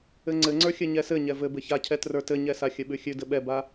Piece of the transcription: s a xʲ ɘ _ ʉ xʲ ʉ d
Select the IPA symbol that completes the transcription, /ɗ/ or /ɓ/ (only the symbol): ɓ